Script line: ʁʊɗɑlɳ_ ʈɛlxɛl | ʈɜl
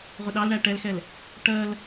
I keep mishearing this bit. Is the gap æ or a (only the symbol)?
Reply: æ